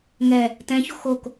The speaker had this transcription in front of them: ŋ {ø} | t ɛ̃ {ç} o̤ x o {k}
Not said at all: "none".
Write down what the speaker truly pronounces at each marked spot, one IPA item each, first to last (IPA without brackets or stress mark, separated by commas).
ɛ, ç, k